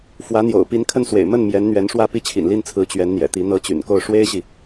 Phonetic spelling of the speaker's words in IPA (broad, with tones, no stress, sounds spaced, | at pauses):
f w ä˧˥ n̪ j o̰˨˩ ʊ̯ p i˧˥ n kʰ ə˥˩ n s w ḛ˨˩ ɪ̯ m ə˥˩ n m j ɛ˧˥ n n̪ ɥ ɛ˧˥ n ʂ w ä˥˧ p i˥˩ t͡ɕʰ ḭ˨˩ n l i˥˩ n t͡sʰ ɹ̩˧˥ t͡ɕ ɥ ɛ˧˥ n n̪ j ɛ̰˨˩ t̪ i˧˥ n̪ ɤ˧˥ t͡ɕ y̰˨˩ n k o˥˩ ʊ̯ ʂ w e˥ ɪ̯ ɕ i˨